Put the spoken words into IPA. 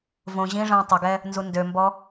v õ ʑ ĩ ʐ ə̃ː tˤ ə ɡ ɛ | n z u n d ø m b ɔ

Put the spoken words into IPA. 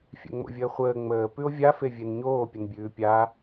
fʲ ɛ̰ ŋ͡m o̰ vʲ əː χʷ əː ŋ͡m əː p ʉ o̯ vʲ a f e vʲ e n ɲ oː pʲ ə n bʲ ʉː pʲ a

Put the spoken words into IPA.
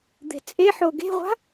d̪ e̤ t͡sʼ e ħ o ɡ e̤ ʁʷ a̤

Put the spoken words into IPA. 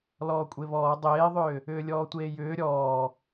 l ɔː kʷʼ e β ɔː dˤ eː ðˤ ʏː | ʏː lʲ ɔː tʷ eː j ʏː ɾʲ ɔː

